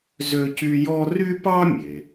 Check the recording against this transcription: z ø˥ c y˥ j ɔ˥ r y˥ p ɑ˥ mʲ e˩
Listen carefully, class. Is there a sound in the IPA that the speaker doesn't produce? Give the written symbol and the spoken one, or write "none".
none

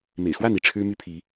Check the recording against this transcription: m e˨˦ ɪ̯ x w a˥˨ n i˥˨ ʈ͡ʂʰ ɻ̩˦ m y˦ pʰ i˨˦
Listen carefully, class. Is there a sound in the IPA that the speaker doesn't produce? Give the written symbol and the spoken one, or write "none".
e˨˦ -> ḛ˨˩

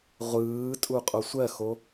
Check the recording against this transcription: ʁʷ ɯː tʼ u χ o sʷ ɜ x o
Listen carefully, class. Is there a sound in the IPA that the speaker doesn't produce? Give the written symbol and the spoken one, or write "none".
χ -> qʼ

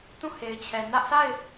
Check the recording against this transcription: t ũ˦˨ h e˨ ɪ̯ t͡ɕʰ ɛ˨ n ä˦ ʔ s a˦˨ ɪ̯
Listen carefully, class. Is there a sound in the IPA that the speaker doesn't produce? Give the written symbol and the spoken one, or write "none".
none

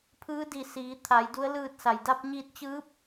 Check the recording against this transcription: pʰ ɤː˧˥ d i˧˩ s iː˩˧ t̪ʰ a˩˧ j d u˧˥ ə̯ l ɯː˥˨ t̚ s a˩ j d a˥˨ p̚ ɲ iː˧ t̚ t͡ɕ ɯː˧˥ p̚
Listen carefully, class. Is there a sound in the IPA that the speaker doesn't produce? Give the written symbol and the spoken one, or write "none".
ɤː˧˥ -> ɯː˧˥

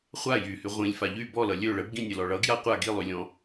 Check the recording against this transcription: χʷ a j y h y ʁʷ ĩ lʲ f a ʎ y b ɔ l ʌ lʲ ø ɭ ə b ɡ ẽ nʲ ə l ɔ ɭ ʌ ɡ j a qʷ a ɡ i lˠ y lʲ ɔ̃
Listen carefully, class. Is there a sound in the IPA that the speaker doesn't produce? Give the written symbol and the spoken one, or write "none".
ẽ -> ĩ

